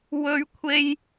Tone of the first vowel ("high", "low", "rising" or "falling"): high